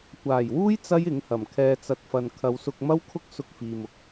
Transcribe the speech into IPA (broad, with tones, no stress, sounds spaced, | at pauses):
kʷ aː˨˩ j w uː˥ j t͡s ɐ˥ j ɪ˨˥ ŋ h ɐ˨˩ m kʰ ɛː˨ t͡s ɐ˨ t̚ f ɐ˨ n kʰ ɐ˨˧ w s ʊ˧ k̚ m ɐ˥ w kʰ ʊ˥ k̚ s ʊ˧ k̚ f iː˨ m ʊ˨ k̚